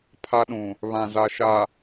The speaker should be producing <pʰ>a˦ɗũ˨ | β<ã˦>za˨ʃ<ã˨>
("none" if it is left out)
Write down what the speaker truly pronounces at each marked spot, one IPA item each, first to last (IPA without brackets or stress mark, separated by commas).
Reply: pʰ, ã˨, a˨